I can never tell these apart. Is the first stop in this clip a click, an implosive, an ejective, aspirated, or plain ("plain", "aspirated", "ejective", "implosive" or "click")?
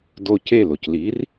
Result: plain